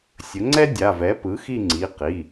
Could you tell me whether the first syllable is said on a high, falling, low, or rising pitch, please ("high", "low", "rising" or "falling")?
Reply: rising